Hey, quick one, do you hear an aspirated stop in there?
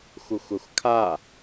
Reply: yes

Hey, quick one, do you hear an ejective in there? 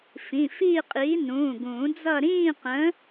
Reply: yes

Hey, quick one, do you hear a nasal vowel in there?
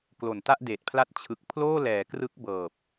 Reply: no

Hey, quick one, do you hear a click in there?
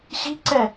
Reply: yes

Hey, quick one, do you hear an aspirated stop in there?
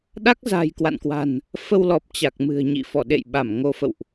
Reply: no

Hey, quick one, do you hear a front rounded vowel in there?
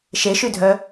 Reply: yes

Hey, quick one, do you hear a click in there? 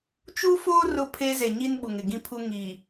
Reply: no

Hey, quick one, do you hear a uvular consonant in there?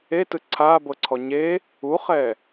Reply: yes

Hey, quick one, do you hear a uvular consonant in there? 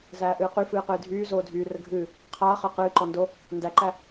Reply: yes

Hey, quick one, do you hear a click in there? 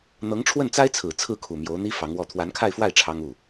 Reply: no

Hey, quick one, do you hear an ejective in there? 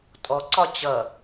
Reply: yes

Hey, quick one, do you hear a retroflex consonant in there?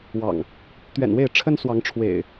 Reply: yes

